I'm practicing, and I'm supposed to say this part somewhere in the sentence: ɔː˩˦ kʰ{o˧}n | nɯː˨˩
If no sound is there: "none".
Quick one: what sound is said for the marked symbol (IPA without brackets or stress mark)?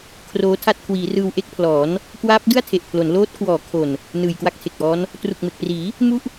o˨˩